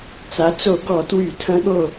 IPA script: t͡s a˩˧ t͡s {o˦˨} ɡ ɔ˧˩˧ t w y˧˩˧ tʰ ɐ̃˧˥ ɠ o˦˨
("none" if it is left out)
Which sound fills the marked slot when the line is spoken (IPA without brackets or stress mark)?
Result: o˧˩˧